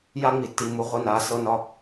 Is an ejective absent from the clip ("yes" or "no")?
yes